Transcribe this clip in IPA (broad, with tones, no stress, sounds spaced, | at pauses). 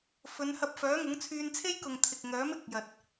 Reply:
f ɵ˨˧ n h ɐ˧ p̚ f œː˨˥ ŋ ʊ˨˥ ŋ t͡sʰ yː˧ n t͡sʰ e˥ j k ʊ˨ ŋ t̪ʰ ɪ˨ k̚ ŋ œː˨˥ m ɪ˨˥ k̚ j ɐ˨ t̚